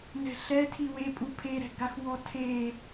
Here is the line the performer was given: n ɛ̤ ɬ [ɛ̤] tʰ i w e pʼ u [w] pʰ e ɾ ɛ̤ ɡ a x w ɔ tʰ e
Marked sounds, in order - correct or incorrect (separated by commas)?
incorrect, incorrect